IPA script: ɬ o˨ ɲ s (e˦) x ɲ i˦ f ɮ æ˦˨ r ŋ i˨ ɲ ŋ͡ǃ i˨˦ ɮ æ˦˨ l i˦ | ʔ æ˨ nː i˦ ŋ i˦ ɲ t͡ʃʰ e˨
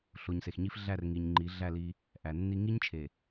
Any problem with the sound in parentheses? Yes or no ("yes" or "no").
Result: yes